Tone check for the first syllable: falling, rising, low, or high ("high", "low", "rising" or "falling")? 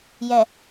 low